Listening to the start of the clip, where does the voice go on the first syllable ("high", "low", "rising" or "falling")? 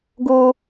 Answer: high